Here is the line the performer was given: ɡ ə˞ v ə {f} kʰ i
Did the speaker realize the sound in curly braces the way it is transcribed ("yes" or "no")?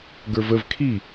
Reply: no